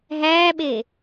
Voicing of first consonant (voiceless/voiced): voiced